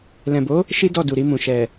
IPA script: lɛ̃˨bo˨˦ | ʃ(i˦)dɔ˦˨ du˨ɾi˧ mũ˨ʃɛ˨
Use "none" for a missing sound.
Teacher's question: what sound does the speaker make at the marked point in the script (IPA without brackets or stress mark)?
i˦